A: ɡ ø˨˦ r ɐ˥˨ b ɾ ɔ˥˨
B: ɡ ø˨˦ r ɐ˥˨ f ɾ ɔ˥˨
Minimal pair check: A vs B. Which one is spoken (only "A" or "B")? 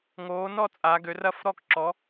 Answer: B